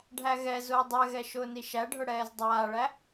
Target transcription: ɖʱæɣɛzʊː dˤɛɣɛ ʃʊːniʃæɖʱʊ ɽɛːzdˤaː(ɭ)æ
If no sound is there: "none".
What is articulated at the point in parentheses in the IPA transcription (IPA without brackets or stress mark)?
ɭ